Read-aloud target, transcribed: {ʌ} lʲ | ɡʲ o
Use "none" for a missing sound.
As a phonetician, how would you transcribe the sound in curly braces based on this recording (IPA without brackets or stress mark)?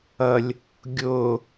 ʌ